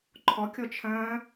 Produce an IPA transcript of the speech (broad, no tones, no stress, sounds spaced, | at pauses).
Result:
ǃʰ ɔ kʲ ɔ t͡ʃʰ ɐ̃ː